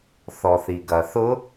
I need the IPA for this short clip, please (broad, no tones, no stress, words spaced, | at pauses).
θɔθiɡɐθʊ